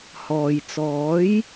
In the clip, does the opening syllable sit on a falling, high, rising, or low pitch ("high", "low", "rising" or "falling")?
low